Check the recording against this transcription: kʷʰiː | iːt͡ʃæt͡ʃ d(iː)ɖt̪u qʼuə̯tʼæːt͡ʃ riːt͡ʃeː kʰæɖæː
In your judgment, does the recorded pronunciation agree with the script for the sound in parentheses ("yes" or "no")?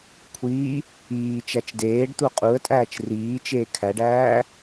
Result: no